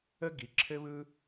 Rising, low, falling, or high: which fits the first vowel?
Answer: high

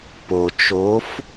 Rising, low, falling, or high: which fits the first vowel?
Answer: low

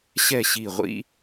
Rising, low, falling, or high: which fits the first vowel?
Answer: falling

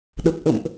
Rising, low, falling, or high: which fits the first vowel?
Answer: low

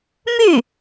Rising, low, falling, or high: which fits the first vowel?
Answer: falling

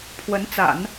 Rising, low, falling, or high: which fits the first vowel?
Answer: rising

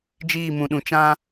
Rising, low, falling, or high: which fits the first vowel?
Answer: falling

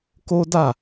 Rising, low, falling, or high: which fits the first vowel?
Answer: high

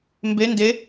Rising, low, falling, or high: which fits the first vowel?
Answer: rising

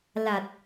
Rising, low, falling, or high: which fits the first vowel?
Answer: low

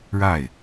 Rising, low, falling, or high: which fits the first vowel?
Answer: falling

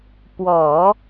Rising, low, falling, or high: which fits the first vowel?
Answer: low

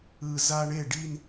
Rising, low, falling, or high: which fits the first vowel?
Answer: low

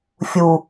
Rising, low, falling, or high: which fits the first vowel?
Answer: low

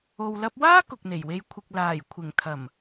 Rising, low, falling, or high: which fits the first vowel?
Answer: low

